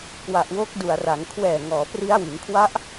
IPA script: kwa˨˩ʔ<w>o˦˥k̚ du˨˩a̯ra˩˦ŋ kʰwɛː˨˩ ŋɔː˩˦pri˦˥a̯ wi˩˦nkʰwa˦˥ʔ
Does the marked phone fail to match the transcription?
no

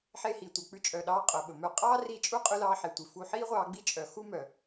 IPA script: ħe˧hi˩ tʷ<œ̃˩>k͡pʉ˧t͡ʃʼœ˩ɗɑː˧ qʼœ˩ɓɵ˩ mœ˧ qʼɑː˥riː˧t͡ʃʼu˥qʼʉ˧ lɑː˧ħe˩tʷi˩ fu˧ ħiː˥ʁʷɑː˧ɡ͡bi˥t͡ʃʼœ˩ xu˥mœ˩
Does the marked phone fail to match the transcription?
yes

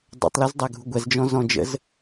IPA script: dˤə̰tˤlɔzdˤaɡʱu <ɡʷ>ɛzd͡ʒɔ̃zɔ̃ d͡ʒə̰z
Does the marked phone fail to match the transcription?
no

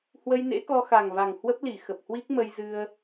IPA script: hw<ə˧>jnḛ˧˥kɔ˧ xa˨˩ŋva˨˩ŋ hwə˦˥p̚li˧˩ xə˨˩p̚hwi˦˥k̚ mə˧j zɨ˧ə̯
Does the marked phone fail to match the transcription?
no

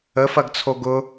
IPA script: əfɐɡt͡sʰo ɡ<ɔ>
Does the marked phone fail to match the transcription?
yes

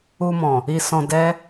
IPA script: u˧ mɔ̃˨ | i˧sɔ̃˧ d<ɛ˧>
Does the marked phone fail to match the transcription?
yes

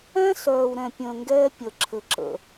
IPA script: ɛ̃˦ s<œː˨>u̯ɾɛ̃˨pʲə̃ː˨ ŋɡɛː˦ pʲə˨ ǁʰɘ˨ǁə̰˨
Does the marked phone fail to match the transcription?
no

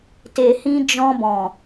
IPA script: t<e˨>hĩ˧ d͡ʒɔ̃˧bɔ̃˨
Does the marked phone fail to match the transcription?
no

